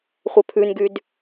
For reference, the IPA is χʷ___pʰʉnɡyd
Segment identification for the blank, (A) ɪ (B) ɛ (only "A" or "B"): B